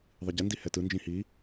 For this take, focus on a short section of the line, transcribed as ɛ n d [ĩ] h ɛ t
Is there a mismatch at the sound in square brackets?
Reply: yes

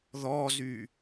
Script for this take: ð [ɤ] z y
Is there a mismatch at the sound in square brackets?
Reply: yes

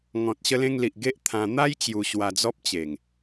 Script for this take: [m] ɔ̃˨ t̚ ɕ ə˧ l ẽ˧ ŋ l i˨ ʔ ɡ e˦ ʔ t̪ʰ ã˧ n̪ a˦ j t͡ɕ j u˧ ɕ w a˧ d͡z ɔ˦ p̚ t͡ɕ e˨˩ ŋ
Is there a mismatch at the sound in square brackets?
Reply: yes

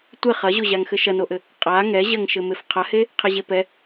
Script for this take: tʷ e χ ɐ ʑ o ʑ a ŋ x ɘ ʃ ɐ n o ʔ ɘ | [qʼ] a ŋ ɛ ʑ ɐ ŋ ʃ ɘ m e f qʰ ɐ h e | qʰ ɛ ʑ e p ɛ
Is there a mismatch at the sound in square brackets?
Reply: no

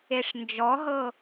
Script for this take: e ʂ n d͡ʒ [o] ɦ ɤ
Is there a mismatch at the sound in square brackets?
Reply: yes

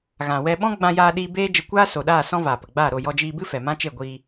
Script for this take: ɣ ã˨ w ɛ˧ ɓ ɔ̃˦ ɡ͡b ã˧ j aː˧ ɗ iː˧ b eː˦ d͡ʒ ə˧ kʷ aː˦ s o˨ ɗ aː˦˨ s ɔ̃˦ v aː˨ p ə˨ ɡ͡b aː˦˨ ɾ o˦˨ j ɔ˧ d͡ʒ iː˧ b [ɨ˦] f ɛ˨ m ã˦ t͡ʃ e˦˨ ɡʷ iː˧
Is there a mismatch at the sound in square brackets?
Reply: no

